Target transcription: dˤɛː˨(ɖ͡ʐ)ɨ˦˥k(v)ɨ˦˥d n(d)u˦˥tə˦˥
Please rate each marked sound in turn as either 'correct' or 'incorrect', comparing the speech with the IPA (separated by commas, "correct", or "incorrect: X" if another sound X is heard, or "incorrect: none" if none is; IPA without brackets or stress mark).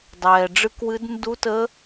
correct, incorrect: w, correct